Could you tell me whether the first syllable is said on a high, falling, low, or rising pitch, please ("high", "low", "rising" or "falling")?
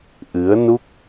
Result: rising